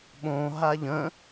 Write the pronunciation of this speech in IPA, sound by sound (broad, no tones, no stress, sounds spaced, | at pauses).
ɓ õ ɦ a ʎ ə̃